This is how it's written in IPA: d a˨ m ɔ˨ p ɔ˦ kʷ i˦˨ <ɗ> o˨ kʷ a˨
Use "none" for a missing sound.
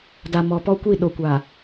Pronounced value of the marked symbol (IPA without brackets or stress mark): ɗ